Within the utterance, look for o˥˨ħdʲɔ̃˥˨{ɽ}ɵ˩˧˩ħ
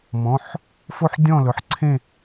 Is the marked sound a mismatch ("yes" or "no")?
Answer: yes